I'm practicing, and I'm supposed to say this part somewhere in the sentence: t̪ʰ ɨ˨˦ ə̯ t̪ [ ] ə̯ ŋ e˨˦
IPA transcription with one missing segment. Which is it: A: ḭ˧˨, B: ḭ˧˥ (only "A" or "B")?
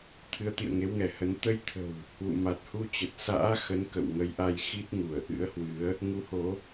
A